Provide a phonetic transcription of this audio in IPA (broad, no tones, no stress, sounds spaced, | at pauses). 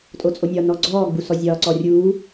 tʼ o t͡sʼ o nʲ ɒ n ɔ ɡ͡ǀ ɔː ɡ͡b u s ɔ zʲ ɒː ǀ ɔ rʲ uː